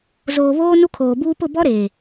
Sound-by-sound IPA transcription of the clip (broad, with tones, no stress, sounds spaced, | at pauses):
z oː˨ β oː˦ n u˦ kʰ oː˨ b uː˦ p ʊ˦˨ b ɔ˦ ɾ eː˨